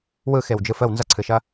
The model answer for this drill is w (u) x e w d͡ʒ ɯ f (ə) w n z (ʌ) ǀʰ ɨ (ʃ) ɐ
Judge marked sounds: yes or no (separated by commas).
no, yes, yes, yes